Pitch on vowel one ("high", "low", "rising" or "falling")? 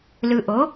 low